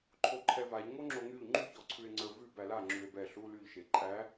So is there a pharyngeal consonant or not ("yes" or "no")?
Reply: no